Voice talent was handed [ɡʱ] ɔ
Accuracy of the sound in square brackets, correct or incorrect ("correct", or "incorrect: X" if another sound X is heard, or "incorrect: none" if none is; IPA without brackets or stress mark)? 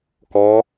incorrect: k